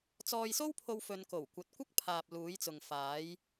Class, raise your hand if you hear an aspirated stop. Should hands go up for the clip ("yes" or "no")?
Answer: yes